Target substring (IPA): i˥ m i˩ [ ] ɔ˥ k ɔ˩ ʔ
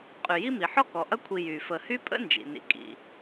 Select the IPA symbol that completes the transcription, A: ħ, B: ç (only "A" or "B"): A